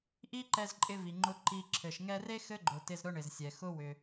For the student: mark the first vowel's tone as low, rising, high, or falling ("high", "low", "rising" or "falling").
high